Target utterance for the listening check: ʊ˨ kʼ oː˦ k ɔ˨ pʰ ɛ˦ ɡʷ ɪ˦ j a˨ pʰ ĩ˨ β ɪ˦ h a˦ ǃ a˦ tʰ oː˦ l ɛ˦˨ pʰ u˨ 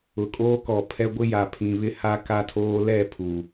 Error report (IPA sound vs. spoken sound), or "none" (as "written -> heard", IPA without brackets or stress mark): ǃ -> k